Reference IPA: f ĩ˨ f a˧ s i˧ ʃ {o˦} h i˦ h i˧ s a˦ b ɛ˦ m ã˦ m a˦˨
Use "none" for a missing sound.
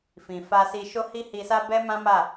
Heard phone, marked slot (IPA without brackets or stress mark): o˦